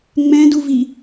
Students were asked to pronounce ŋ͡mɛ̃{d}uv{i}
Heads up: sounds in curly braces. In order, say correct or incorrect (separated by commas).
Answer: correct, correct